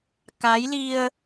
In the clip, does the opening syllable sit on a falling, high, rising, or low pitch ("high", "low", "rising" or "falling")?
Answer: rising